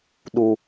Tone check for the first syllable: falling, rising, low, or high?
high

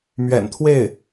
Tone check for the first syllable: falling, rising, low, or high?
low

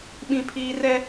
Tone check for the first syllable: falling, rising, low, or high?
high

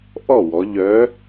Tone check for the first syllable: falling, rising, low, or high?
falling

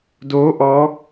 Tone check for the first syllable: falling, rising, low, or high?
rising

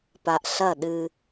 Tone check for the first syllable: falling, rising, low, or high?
low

